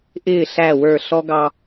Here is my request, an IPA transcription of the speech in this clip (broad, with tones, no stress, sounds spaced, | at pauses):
ʔ ɪː˦˨ ɬ æ˦˨ w ə˞˦˨ ɬ ɔ˦ ɡ ɑ˦